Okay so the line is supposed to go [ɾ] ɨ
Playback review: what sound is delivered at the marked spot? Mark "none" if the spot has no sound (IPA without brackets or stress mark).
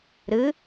ɾ